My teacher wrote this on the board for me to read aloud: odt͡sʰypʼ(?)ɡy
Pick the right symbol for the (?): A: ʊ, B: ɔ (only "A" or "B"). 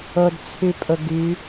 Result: A